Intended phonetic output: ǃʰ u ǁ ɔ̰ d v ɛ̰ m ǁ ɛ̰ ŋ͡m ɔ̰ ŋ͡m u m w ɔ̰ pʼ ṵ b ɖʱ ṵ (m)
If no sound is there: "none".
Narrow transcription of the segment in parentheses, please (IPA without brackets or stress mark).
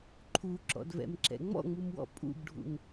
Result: ŋ